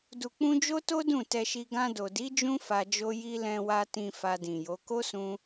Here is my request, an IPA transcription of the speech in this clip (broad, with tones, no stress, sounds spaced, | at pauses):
d u˨ k͡p ũ˧ d͡ʒ o˦ t o˦ d ũ˦˨ t ɛ˧ ʃ i˧ ɡ ã˧ d o˨ d i˨˦ d͡ʒ ũ˧ f a˧ d͡ʒ o˦ j i˦ l ɛ̃˧ w a˧ t ĩ˧ f a˧ d ĩ˨ j o˨˦ k o˦ s ũ˧